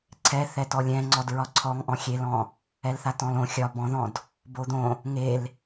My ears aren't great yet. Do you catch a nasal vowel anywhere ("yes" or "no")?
yes